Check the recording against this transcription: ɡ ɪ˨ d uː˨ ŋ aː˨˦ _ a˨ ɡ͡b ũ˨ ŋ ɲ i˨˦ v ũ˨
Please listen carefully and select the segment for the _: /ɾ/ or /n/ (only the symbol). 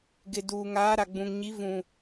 ɾ